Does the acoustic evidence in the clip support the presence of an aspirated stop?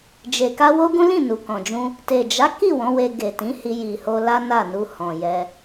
no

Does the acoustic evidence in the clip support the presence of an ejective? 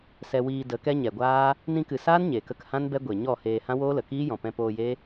no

